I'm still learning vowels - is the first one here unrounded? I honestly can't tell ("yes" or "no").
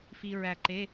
yes